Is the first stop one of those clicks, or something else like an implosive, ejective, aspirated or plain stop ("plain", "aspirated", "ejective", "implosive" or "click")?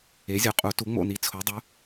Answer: ejective